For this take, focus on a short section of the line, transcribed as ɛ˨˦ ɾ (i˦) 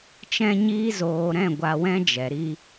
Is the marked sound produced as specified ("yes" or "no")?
yes